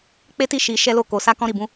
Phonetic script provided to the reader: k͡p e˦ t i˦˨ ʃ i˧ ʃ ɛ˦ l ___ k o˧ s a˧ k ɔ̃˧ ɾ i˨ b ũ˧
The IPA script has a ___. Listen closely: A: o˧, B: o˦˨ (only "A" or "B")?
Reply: B